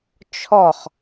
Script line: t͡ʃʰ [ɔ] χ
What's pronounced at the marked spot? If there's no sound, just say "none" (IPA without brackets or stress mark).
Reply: ɔ